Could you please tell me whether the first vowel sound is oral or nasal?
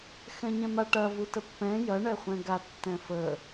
nasal